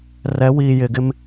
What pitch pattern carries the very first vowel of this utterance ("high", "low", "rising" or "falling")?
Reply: rising